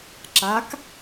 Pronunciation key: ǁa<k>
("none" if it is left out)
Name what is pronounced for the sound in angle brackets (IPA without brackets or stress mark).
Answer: k